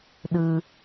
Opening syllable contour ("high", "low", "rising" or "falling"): low